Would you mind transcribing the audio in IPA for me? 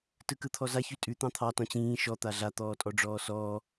t ɯ k ɯ t̪ʰ ɔ z a ç ʉ tʼ ʉ t̪ ɑ̃ t̪ʰ ɑ t ɔ̃ t͡ɕ ĩː ʃ ɔ t̪ a ɮ a t̪ ɔː tʼ ɔ ɖ͡ʐ ɔː s ɔː

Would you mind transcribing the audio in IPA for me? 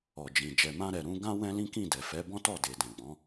ɔ˨ d͡ʒ ĩ˨ d͡ʒ ɛ˨ m ã˧ ɾ ɛ˨ ɾ ũ˨˦ ɡ ã˦ w ɛ̃˦ l ĩ˦ k ĩ˦˨ d ɛ˨ f ɛ˨˦ b ɔ̃˦ t ɔ˦˨ d e˨ d ɛ̃˨ ɡ͡b ɔ̃˨˦

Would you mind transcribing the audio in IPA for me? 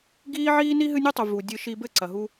ɡ iː˦ ʕ iː˦ n i˦ ɦ ɨ˦ nʲ u˦ tˤ u˨ v u˨ dʲ ɨ˧ ʃ i˧ b ɘ˦˨ ǀ ɐ˨ ɦ u˧

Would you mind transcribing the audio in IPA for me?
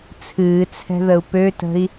t͡sʰ ɨː t͡sʰ ɛ̤ ð ə u̯ p ø t ə̤ i̯

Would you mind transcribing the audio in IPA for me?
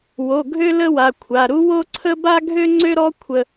w o˩˧˩ ɡʱ ø˥ l ə˥ w a˩˧˩ kʷʰ a˩˧˩ ɾ u˥ w o˥ ǀʰ ə˥ b a˥ ɡʱ ø˥ ŋ͡ǀ ø˥ ɾ ɔ˥ kʷʰ ə˥

